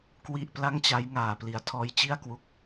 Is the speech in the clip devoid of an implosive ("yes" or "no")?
yes